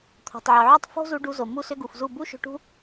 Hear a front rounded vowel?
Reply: yes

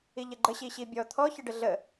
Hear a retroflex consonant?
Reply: yes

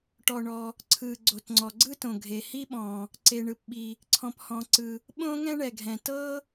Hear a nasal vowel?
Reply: yes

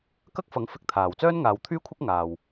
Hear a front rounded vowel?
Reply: yes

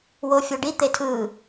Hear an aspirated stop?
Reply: yes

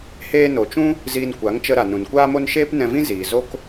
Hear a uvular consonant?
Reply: no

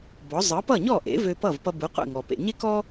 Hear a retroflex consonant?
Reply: no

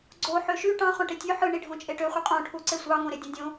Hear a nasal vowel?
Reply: yes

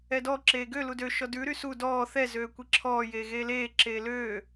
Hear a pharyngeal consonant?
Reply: no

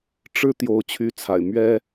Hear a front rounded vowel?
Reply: yes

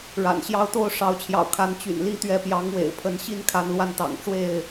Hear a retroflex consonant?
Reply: yes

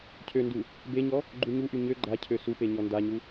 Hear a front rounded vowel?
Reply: yes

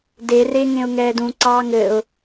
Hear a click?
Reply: yes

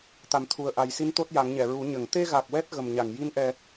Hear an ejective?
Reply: no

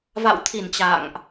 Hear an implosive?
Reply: no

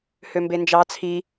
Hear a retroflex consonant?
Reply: no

